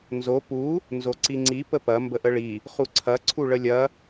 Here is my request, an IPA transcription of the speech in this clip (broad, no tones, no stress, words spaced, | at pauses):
nzo pu | nzoǀiŋ͡ǀi pəpɐ mbəʔəɭi | χuǀʰɐ ǀʰuɭəlʲɐ